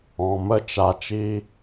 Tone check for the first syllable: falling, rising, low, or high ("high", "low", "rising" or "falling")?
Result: low